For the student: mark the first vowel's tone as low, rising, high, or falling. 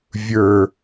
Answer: low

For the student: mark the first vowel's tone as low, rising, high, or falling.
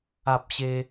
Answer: low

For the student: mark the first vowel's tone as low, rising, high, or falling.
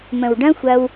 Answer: low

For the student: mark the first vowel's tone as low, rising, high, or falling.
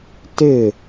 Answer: falling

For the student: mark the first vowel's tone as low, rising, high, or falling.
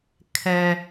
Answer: low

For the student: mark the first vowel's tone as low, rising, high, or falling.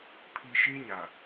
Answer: low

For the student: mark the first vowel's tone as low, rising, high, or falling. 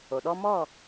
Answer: low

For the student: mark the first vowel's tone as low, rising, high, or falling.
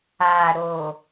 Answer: low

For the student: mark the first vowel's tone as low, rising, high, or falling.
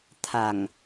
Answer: low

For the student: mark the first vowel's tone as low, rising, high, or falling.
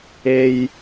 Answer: low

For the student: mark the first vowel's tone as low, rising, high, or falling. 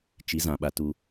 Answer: rising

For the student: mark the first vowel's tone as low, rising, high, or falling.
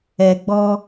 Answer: low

